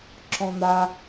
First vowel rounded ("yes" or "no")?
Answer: yes